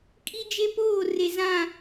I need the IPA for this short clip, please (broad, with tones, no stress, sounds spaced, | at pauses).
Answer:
kʼ i˦ d͡ʒ e˦ p oː˦˨ r e˨ z ã˦˨